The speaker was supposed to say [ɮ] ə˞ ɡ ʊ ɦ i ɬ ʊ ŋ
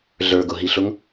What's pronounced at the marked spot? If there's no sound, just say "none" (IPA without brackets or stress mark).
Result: ɮ